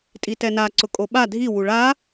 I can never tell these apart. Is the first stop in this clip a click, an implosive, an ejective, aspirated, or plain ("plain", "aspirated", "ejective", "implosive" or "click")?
ejective